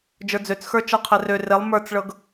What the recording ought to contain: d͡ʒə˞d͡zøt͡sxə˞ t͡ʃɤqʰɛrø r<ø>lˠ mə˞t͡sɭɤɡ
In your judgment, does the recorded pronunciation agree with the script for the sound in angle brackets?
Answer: no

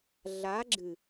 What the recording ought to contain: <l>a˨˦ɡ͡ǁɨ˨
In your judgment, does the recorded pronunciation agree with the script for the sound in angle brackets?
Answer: no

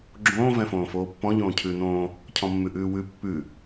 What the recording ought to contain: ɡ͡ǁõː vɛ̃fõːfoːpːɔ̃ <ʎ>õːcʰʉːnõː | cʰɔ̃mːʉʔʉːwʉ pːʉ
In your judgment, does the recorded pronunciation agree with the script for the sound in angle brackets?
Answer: yes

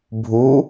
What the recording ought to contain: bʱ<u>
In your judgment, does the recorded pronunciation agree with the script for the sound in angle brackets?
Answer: yes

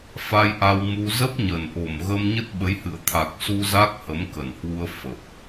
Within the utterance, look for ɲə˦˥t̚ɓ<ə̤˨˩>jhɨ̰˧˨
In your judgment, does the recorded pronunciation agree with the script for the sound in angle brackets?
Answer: no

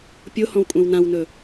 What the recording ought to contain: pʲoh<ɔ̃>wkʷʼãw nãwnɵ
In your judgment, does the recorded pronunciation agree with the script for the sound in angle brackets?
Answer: yes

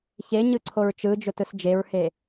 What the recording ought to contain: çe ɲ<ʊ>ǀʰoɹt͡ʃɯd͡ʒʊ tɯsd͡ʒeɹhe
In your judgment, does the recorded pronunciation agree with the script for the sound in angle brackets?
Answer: no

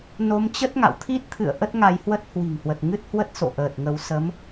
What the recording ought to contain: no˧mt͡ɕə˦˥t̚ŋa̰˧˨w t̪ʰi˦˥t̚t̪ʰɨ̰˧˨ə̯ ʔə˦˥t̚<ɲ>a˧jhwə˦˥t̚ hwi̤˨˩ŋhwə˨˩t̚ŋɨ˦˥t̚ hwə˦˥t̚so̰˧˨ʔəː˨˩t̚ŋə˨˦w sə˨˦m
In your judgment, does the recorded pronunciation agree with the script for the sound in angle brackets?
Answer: no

